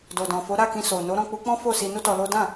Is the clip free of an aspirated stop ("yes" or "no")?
yes